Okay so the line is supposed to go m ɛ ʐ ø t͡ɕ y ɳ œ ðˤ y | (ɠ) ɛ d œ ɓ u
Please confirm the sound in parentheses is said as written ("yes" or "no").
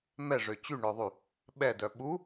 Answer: no